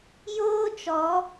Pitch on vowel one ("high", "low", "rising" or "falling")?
high